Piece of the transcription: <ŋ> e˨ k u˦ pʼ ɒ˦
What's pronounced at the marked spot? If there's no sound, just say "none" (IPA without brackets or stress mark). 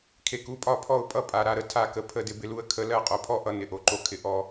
kʰ